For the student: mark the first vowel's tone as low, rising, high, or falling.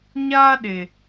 high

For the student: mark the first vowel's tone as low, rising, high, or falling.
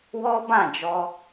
high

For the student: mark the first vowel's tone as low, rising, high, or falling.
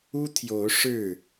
high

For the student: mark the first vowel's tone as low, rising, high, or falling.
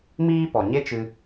high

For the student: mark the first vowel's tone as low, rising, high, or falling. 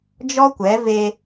high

